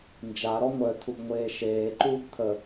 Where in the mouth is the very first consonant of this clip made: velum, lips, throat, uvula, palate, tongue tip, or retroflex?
tongue tip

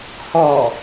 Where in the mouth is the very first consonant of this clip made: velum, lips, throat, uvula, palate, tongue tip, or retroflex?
throat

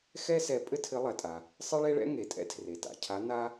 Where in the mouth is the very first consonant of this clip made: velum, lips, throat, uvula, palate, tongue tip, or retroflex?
velum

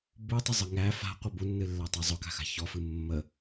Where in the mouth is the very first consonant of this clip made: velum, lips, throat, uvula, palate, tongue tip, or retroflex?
lips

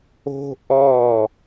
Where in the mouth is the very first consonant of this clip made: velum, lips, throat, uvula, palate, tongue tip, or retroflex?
throat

